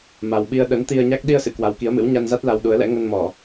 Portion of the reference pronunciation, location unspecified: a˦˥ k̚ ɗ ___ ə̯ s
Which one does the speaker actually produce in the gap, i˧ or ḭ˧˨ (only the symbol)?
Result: i˧